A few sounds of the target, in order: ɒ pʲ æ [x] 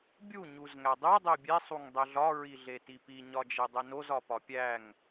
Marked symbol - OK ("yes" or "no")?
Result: no